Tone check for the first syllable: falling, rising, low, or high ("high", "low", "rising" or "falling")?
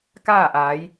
falling